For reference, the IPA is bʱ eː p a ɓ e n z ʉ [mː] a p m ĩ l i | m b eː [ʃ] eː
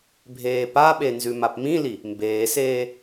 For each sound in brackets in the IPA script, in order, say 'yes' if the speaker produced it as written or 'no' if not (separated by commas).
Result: no, no